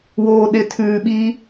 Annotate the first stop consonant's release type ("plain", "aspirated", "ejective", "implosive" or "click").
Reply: implosive